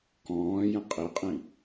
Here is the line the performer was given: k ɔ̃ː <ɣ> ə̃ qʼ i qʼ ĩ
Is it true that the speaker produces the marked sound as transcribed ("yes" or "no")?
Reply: no